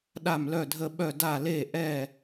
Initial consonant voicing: voiced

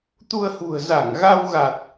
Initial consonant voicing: voiceless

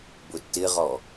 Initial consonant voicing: voiced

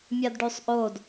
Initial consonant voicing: voiced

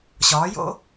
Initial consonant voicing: voiceless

